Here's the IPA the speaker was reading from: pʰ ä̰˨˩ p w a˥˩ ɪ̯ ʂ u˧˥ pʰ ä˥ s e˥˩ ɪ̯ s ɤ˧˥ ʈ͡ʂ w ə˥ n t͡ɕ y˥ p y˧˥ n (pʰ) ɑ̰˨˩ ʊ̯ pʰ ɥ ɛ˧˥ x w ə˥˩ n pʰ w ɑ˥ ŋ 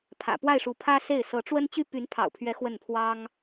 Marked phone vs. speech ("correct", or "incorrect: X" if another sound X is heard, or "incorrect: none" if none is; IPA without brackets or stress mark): correct